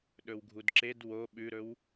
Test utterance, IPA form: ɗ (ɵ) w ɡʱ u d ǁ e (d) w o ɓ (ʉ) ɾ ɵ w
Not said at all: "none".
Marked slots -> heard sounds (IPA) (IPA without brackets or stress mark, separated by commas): ɵ, d, ʉ